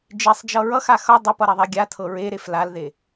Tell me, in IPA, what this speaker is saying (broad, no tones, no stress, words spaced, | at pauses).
d͡ʒesˤd͡ʒʌ ɹʌxa xʌ dˤepʌɾiðˤe ɡʲatʰɤ ɹeɾef lalðe